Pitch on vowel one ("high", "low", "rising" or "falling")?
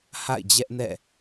falling